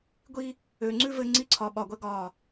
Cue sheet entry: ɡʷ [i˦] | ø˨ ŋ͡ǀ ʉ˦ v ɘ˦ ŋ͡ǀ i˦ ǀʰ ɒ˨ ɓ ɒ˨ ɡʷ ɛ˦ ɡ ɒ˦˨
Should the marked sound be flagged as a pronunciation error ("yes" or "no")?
no